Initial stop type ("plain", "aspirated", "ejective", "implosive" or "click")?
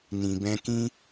plain